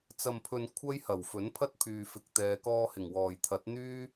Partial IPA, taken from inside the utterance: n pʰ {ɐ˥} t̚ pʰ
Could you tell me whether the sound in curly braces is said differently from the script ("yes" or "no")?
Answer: no